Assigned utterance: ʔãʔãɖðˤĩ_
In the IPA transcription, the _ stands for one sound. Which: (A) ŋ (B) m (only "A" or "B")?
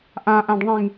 A